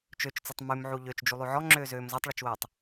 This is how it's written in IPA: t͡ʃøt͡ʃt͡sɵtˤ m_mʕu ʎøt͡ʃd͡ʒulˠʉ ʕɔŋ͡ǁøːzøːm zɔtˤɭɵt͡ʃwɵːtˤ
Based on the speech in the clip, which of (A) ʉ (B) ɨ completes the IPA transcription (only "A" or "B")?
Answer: A